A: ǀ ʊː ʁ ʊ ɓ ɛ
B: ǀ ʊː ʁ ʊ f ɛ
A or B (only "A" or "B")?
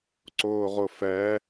B